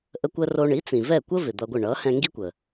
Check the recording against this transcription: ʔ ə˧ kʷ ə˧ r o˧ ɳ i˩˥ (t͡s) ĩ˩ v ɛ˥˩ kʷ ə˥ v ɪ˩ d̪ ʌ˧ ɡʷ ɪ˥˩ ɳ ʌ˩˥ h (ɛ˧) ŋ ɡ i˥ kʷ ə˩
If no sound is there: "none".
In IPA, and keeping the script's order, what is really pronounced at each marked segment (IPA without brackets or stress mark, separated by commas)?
t͡s, ɛ̃˧